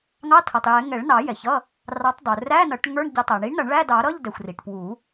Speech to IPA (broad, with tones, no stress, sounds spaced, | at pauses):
ŋ ɑ˧˥˧ tʰ ʌ˩ tˤ j ɛ˨˩˦ ŋ ɛ˨˩˦ ɭ n ɑ˨˩˦ j ɛ˩ ç ʌ˧˥˧ | r ɑ˨˥ tˤ dˤ u˩ r æ˧˥˧ n ʌ˨˩˦ ʈ ŋ ə˞˧˥˧ ɳ ɟ ʌ˨˩˦ tˤ æ˩ ɳ i˨˥ ɳ n ʌ˨˩˦ ɳ ɭ æ˧˥˧ d ɑ˨˩˦ ɾ ʌ˧˥˧ ʎ d ɛ˩ xʷ r i˩ ʈ p w u˨˩˦